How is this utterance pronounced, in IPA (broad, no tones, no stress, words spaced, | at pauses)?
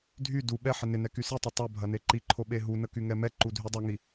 dʱy du ɓɛ ħɪnɪnɛ kysitˤɐ tˤobʱɐ neǃiǃʰo ɓeɦunə kyŋɛmɛǃu dʱydˤoŋi